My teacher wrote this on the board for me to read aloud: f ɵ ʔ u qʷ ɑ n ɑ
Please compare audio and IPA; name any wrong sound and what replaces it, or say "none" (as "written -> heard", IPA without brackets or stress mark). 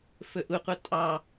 n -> tʼ